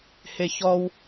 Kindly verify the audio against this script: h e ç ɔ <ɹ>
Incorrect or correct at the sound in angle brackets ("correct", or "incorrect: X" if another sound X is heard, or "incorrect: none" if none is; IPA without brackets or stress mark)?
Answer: incorrect: w